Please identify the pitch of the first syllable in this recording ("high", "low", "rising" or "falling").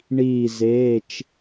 falling